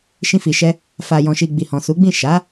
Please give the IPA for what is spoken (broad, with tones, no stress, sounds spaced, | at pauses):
ʃ ĩ˧ f i˨ ʃ ɛ˧ | f a˨ j ɔ̃˨ ʃ i˨ ɡ͡b i˨ h ɔ̃˨ s u˨˦ ɡ͡b ĩ˦˨ ʃ a˨˦